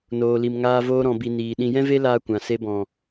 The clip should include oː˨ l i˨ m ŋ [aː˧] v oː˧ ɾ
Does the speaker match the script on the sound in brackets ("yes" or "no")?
yes